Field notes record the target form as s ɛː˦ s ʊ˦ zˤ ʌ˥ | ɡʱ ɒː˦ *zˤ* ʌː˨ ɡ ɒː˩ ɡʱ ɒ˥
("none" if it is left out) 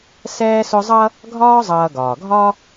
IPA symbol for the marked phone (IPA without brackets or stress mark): zˤ